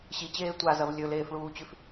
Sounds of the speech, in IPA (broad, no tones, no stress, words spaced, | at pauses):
ɕit͡ɕeː tʷazɐv lʲɵleːfɭuːt͡ɕʉf